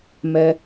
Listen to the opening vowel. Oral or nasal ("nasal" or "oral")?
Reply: oral